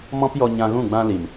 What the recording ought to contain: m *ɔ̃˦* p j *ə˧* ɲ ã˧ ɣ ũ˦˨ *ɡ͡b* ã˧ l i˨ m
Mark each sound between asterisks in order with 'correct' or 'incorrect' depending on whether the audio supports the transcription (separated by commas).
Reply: correct, incorrect, correct